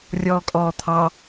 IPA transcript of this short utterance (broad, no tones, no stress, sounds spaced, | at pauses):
rʲ ɔː kʼ ɔː t̪ʰ ɑ